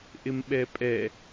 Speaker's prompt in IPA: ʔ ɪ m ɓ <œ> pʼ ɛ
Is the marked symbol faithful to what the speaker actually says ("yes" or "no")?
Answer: no